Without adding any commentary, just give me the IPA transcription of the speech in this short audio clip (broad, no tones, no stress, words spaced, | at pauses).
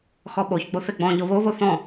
xɔɓoçɡ͡bo θeɡ͡bɔ̃ʎo βoβo θɔ̃